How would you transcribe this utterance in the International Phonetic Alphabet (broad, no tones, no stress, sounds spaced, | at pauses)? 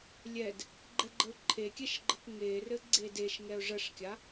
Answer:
lʲ ɛ d | ɡ͡ǃ ɛ ɡ͡ǃ ə ʊ̯ ǃʰ e kʲ ɛ ʃ ɡ͡ǃ ə k ŋ e r ɘ ɡ͡ǀ e d e ʃ ŋ ɛ ʊ̯ ʐ ə ʂ kʲ a